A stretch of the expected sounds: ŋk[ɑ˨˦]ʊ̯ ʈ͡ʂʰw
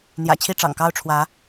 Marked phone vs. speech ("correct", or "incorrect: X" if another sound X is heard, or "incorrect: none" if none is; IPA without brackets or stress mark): incorrect: ɑ˦